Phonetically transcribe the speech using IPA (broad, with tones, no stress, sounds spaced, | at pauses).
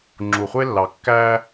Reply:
ŋ͡ǁ u˨ χʷ e˦ lː ɑ˨ kː æ˦